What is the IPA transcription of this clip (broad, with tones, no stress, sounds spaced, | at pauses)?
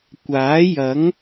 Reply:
kʷ aː˨˥ j ɐ˨˥ ŋ